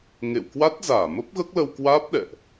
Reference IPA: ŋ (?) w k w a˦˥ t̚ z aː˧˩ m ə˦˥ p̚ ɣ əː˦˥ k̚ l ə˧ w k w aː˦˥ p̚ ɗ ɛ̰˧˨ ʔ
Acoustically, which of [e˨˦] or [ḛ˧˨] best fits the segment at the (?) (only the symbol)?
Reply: ḛ˧˨